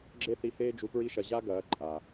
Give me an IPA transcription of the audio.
ɡ͡ǁe˦θi˧heː˦ d͡ʒu˧pɹi˦ʃɐ˧ ʑa˦ɡɐː˨˦ ǃʼa˨

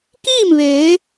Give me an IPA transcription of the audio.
kiː˥˨mʋeː˩˧

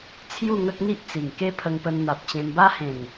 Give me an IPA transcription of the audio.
t͡sʰju˥˧ŋə˦k̚n̪i˦ʔ t͡si˨˩ŋke˦pʰə˧ŋpə˧n n̪a˨p̚t͡ɕẽ˧mba˦ hẽ˨˩ŋ

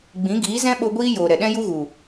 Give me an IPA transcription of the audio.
ɡ͡bĩ˨˦ɡiː˨˦zɛ̃˦ɓo˧ ɡʷiː˦ joː˨ ɾɛ˨ɗɛ̃˦ju˦ɣu˨

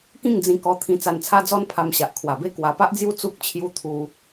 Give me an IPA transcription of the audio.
kĩ˥˧ŋd͡zĩ˧kɔ˧ t̪ʰĩ˧t͡sa˧nt͡sʰa˦d͡zɔ˦n pʰa˧mɕa˨ʔkʰwa˨˩be˦ kwa˨˩pa˦ʔd͡zju˦ t͡su˦k̚ t͡ɕʰju˧ t̪ʰu˧

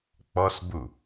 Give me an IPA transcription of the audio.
k͡pɔsbu

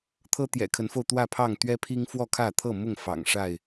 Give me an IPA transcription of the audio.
t̪ʰɤ˦t̪jɛ̰˨˩kʰə˨˦nfo˧ʊ̯ t̪wä˥˨pʰɑ˥˨ŋ t̪ɥɛ˦pʰi˦ŋ fwɔ˥˨kʰä˥˨t̪ʰɤ˥˨mʊ˥˨ŋ fɑ̰˨˩ŋʂa˥˨ɪ̯

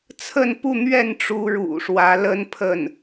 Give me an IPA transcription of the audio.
t͡sʰə˥˧npu˥˧n̪ɥɛ˥˩n ʈ͡ʂu˧˥ ɻṵ˨˩ʂwä˧˥lə˥npʰə˥˩n

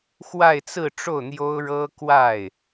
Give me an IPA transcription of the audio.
xwa˥˧ɪ̯t͡sɹ̩˥˧ʈ͡ʂo˥˩ʊ̯ n̪jo˥ʊ̯ɻɤ˥kwa˥˩ɪ̯

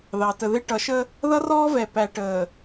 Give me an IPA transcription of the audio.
ðɑ˨ tə˨ðɪ˦ ʈʌ˨˦ʃə˦ | ðʌ˦rɔː˦vɛ˨ pæ˨ ʈəː˨

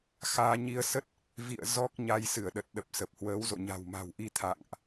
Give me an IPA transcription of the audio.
xaː˧ ɲi˧ə̯sə˦˥t̚ | vḭ˧˨ə̯ zɔ˦˥k̚ɲa˧j sɨ˧˩ə̯ɗə˨˩t̚ɗə˨˩p̚ sə˨˩p̚hwəː˨˦wzo̰˧˨ɲa̤˨˩w ma̤˨˩wʔi˧ t̪ʰa̰˧˨ŋʔ

